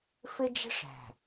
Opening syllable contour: high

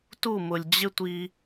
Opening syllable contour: falling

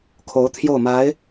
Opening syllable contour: rising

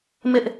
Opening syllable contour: high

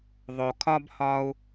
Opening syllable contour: low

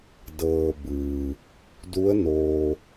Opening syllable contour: low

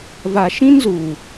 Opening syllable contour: low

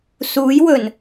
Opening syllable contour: rising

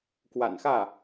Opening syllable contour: low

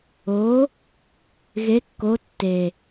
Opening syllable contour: rising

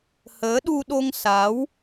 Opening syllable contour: rising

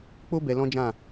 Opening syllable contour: high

